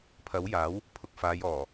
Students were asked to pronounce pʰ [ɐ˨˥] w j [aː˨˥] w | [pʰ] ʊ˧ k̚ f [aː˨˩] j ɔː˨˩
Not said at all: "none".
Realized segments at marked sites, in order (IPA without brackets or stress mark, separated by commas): ɐ˨˥, aː˨˥, pʰ, aː˨˧